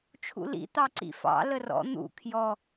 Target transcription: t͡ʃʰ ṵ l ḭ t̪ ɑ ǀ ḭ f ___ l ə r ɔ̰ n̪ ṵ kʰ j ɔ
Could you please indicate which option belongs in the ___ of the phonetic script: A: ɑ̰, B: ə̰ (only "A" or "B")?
A